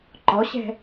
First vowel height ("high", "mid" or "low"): mid